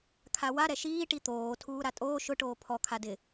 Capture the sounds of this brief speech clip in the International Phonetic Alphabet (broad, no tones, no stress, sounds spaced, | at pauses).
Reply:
kʰ a w a ɾ ɛ ʃ iː ʈ i t̪ oː tʰ uː ɾ a tʼ oː ʃ ʊ ʈ oː pʰ ɔ kʰ a d ɪ